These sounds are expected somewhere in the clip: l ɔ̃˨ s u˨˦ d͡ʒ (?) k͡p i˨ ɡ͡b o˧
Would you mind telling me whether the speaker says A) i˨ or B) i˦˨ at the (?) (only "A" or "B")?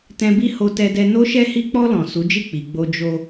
B